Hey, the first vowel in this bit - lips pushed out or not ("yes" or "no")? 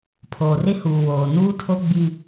yes